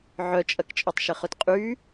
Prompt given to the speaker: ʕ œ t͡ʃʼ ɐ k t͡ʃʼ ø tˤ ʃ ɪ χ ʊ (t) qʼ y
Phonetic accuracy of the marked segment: correct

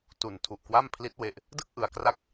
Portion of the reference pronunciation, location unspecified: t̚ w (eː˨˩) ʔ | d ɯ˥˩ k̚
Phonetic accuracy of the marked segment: incorrect: e˨˩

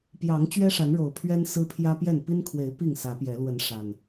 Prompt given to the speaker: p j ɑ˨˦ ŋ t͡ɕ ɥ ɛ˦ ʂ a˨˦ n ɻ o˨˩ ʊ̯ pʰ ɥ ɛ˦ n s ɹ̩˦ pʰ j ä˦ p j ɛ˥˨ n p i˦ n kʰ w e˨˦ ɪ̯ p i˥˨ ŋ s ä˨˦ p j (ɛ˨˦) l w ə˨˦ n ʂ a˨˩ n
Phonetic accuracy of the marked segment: correct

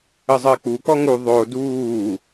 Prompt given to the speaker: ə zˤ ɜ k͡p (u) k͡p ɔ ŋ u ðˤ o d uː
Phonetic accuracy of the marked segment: correct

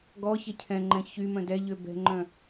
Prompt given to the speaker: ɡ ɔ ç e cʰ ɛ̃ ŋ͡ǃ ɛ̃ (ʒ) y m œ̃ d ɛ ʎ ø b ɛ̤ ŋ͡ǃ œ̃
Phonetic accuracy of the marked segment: incorrect: ç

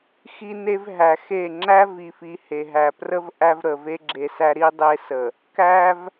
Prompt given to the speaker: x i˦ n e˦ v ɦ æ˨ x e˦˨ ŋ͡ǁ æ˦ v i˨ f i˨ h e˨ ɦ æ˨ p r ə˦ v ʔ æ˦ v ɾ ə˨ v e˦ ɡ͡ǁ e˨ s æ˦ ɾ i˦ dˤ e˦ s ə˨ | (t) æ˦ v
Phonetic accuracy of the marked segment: incorrect: k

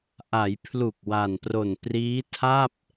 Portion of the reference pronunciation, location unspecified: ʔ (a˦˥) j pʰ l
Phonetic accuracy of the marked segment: incorrect: a˩˦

